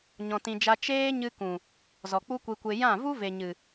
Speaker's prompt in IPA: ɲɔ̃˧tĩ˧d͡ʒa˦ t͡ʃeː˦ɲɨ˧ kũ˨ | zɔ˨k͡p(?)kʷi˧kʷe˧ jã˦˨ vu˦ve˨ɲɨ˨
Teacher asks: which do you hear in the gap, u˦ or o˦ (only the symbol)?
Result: u˦